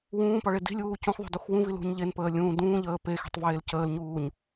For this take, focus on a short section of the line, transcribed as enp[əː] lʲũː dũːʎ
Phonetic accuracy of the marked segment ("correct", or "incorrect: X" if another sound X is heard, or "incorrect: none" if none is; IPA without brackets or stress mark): correct